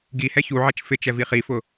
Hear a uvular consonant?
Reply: yes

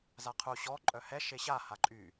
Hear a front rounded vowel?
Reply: yes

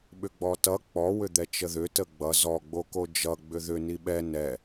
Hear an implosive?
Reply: yes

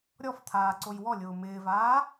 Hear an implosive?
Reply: no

